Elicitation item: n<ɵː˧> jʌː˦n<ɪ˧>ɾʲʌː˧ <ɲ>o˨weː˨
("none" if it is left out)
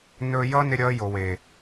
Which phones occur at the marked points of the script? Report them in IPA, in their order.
ɵː˧, ɪ˧, j

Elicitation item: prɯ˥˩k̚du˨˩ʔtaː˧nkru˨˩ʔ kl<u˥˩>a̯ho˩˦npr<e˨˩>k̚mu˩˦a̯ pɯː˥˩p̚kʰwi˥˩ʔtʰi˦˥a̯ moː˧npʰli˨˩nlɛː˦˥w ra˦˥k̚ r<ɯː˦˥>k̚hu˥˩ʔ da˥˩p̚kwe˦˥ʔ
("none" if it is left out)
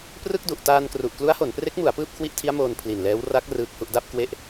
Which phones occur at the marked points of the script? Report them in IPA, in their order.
u˦˥, e˦˥, ɯː˦˥

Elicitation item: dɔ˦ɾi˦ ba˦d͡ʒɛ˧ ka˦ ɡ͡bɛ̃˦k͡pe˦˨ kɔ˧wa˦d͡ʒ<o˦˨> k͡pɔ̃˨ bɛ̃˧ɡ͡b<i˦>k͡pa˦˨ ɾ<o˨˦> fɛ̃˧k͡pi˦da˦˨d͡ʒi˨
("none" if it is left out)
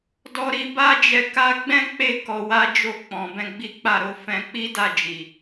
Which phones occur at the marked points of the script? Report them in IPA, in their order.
o˦˨, i˦, o˨˦

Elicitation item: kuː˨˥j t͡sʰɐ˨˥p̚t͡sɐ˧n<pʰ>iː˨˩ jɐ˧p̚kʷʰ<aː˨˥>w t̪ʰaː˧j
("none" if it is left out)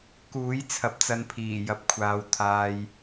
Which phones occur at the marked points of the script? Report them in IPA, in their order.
pʰ, aː˧

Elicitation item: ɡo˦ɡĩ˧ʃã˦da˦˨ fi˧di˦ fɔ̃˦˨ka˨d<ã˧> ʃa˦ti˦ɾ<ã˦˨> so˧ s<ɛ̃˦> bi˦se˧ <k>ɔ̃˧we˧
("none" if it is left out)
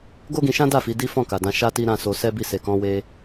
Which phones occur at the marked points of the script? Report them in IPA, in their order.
ã˧, ã˦˨, ɛ˦, k

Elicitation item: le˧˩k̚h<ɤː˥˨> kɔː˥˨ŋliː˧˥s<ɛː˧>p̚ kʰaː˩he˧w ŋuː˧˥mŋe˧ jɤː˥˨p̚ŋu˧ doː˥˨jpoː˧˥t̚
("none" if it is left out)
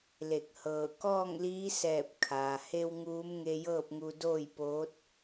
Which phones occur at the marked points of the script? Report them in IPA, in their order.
ɤː˧˩, ɛː˧˩

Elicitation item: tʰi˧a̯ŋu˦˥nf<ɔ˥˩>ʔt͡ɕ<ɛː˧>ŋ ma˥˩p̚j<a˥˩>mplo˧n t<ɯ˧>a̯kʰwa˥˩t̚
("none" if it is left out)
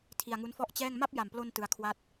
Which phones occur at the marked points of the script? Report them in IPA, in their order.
ɔ˥˩, ɛː˥˩, a˨˩, ɯ˧

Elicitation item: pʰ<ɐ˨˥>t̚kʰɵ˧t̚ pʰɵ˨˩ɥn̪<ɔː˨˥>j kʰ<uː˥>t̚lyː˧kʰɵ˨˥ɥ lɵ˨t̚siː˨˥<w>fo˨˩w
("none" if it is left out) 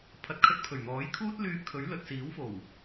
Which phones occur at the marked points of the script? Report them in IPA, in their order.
ɐ˨˥, ɔː˨˥, uː˥, w

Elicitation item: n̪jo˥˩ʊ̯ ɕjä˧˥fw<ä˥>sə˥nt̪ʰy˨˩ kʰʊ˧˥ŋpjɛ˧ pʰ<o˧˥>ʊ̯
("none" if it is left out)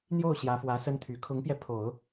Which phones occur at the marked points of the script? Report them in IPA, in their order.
ä˧˥, o˨˩˦

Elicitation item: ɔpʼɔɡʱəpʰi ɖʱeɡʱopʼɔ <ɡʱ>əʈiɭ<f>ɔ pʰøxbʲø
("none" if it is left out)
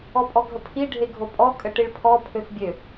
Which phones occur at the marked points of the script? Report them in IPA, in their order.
kʼ, pʰ

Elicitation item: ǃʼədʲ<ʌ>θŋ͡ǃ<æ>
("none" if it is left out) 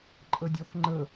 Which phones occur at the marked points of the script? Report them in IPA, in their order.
ɔ, ə

